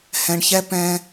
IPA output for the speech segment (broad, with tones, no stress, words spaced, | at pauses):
hɛ̃˨ɳçɛ˦ pɛ̃˦